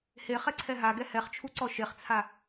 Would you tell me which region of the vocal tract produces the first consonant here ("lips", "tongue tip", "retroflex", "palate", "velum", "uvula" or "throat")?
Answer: throat